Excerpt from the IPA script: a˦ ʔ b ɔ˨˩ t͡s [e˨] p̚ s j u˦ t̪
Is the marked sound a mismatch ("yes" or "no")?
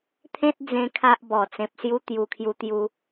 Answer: yes